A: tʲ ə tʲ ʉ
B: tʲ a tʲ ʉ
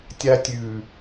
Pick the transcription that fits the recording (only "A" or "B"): B